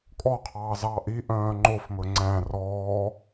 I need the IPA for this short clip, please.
kʼɔqʰɑː zɑːʔiʔœ̃ː ŋ͡ǃofmɵ ŋ͡ǀæ̃ rɔː

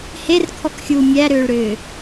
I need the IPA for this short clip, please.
herkʰɔkxʲuː mʲæɾʏːɭɾʏː

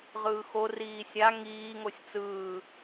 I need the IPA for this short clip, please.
ʁɯːxo riːsʲa ŋiːŋosʲ t͡sɯː

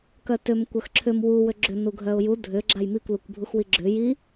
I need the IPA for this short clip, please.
kœtʏm kʷœxǁʰʏm wu wʏɡ͡ǁʏ nuɡʱœʊ̯ju dʱʏ ɡ͡ǁajmikʷ lukʷbʱuxwiɡ͡ǁʏ ji

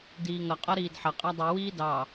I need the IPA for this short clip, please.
diːŋʌ qʼɒɾiːdħʌ qʼædˤu wiːdɑ

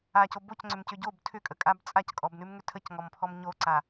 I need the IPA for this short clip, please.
aco bocŋ͡ǀʏmcʏ ɟob tʰʏkʼəkʼab t͡sʼackʼɔbnʉmŋʏ tʰəcŋɔmpʰɔm ɲoǀa

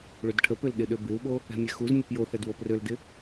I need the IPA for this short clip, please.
ɭødʈʰəpøl ɗɪɗøbɪu̯ɓo | ɛ̤mʲɛxuzmʲəp joθɛd woprøldɪ

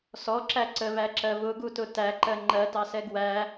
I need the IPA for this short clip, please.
sɔǁæ ǀəβæǁɜ βʊɡutʊ tæǃɜ ŋ͡ǃɜtɑsɛɡ wæ

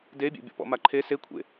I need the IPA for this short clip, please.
debʲḛbʲɔ̰ pɔ̰maǃʰe sekʷʰḛ

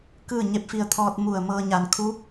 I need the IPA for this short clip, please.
kɯː˥˨ɲe˧˥p̚fi˧ə̯t̪ʰɔː˧t̚ mu˧˩ə̯ mɤː˧ɲa˧˩nkʰuː˧˥p̚

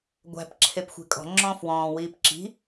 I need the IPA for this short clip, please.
ɡʷæ̤p ǁʰepxʷe̤kʼɔ̤ ŋ͡ǁɔ̃ːfwɔ̃ː wiːpǁi̤

